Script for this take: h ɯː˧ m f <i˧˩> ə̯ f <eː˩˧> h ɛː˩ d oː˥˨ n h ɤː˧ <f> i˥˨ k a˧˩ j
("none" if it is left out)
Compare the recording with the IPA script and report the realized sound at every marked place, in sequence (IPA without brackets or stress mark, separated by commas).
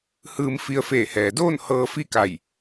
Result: i˧, eː˧˩, f